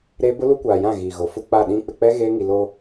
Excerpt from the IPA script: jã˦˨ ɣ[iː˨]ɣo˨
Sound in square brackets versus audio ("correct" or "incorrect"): correct